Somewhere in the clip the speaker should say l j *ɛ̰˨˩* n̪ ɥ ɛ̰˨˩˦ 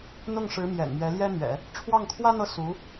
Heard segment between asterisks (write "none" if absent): ɛ˥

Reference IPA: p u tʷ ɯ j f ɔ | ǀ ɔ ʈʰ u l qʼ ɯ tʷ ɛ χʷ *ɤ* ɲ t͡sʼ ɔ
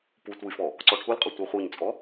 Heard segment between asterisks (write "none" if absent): ɤ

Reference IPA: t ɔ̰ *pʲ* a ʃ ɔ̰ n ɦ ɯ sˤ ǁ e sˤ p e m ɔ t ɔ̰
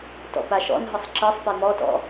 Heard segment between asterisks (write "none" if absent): p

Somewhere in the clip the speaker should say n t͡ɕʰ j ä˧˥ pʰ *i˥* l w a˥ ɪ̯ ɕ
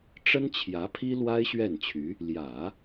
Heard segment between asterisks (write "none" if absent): i˥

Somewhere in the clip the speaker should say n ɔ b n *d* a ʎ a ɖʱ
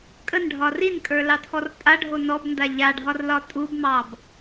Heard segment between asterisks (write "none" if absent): d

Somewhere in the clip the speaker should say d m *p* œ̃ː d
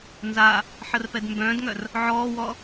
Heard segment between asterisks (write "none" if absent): b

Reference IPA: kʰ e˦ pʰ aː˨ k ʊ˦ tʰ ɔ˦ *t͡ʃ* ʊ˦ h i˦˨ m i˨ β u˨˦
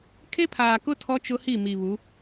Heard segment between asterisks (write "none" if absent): t͡ʃ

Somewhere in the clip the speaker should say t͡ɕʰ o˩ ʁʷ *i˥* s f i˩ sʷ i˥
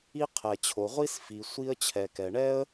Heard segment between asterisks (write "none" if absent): i˥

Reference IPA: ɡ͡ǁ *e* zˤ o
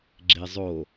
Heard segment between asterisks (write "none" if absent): e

